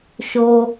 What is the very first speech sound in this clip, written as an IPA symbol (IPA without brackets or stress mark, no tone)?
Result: ʃ